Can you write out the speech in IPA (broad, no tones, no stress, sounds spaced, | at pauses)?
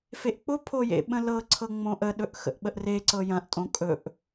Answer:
f e ʔ k͡p ʊ pʰ o j ḛ ɓ ə̃ l ɤ ǀʰ ɤ ŋ͡m õ ʔ ə ɗ ɵ ʔ x ə̰ ʔ ɓ ə ʔ r e ǀ ɤ j ɐ̃ ʔ tʼ õ kʼ ɵ ʔ